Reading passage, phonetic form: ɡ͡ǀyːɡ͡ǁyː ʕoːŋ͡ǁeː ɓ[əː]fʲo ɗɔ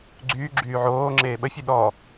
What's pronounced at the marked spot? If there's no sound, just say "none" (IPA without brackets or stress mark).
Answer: ə